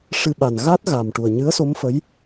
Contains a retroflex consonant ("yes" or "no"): yes